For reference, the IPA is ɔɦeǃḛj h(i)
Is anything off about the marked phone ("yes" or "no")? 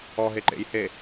yes